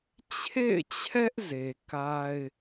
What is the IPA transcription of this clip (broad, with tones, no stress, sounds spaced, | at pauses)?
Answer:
t͡ɕʰ ḛ˦˨ ɪ̯ t͡ɕʰ ɛ˦ ʔ z e˨ k a˦ ɪ̯